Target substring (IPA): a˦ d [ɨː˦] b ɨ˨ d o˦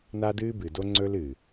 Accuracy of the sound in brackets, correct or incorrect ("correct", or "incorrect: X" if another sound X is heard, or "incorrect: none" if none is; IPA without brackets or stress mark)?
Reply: correct